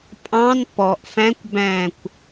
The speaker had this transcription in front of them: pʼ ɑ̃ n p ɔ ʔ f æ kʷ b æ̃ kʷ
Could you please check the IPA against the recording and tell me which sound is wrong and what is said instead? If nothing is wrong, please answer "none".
æ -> æ̃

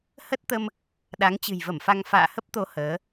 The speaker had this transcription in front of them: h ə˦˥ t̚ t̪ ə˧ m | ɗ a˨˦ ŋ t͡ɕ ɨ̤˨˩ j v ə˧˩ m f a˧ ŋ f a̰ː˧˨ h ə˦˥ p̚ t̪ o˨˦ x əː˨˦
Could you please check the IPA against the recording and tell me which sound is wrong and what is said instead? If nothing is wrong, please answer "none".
x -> h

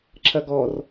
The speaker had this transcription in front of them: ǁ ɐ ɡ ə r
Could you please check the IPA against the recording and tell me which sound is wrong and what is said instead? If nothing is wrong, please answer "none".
ə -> ɔ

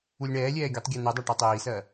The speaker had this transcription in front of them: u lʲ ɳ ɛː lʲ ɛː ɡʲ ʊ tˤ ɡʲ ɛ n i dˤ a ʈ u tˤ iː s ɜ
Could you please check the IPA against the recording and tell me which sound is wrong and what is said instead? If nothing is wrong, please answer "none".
none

